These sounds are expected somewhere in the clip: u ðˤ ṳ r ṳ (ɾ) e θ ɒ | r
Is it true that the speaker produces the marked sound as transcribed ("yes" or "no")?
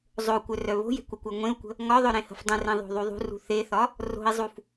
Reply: no